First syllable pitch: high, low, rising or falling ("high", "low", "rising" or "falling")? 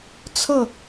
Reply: falling